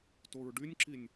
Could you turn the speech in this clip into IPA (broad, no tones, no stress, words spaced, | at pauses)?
toɹɖynʲǁinʲ